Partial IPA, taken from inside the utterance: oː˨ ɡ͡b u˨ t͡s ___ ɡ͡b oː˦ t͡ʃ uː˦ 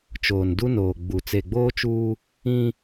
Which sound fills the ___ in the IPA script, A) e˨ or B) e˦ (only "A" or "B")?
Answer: A